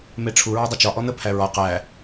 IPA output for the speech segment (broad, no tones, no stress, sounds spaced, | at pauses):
m e ʈ͡ʂʰ u ɹ ɔ dˤ ʊ t͡ʃ ɒ ʔ ɔ n̪ ə pʰ æ ɹ ɒ q æ